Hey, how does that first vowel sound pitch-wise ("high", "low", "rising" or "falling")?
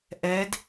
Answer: rising